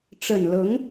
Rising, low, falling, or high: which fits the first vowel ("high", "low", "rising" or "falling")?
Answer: low